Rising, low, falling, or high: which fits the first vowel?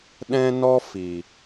high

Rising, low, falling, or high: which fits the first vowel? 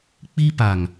high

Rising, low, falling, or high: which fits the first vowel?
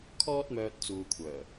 high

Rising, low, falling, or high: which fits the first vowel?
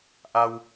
low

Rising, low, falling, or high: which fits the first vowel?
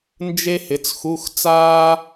high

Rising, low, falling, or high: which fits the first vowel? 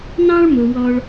high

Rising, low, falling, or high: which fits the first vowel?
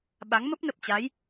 rising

